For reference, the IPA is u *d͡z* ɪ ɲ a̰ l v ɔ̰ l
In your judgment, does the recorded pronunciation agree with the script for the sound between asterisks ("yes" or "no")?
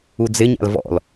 yes